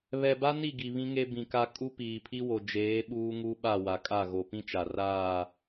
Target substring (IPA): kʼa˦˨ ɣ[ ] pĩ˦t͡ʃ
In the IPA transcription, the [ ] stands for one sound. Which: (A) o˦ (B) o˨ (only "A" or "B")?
B